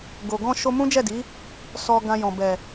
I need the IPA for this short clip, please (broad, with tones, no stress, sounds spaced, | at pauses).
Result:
ɡ o˨ ɡ ɔ̃˧ ʃ o˧ m ũ˦ d͡ʒ ɛ˦˨ d i˨˦ | s ɔ˧ ɡ ã˧ j ɔ̃˨ b ɛ˨